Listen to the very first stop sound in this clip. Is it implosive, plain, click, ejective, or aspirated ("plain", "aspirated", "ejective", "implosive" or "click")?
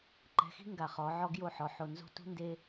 click